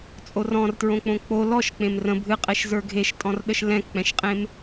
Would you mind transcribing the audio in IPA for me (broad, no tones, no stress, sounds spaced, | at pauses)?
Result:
t͡sʼ o r ɔ̃ r t ɹ õ k͡p õ k͡p o l ɔ ʃ k͡p ẽ m r ə̃ bʱ ɨ qʼ ɛ ʃ z ə˞ ɡʱ e ʃ tʼ ɔ̃ r ɗ ə ʃ l ɛ̃ k k͡p ɛ̃ ʃ qʼ ẽ m